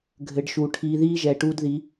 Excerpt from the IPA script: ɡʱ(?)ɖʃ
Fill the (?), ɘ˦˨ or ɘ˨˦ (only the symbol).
ɘ˨˦